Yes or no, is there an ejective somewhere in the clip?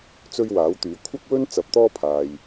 no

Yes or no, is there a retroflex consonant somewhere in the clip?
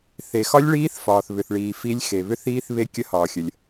yes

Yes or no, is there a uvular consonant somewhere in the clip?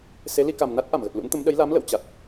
no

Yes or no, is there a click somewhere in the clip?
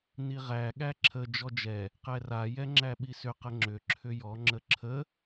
yes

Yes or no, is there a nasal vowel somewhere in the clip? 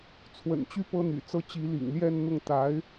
no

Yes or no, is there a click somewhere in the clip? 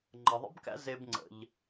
yes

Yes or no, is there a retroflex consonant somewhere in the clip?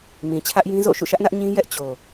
no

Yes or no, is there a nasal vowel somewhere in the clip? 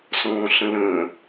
yes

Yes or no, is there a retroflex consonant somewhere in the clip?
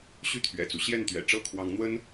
yes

